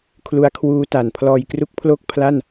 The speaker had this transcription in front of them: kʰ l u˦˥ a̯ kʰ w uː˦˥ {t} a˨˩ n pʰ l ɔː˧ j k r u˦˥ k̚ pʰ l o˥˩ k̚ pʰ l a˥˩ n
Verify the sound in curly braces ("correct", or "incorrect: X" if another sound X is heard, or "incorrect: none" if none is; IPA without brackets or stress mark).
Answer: correct